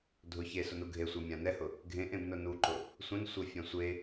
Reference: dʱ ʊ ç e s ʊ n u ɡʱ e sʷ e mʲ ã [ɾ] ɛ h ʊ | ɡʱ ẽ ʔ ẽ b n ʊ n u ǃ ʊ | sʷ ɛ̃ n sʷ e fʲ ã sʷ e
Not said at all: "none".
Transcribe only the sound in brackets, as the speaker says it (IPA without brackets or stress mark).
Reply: n